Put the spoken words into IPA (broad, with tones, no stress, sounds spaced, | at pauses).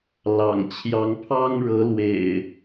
l ɑ̰˨˩ ŋ t͡ɕʰ j ɑ˨˦ ŋ pʰ ɑ˦ ŋ ɻ ɤ˨˦ l w ḛ˨˩ ɪ̯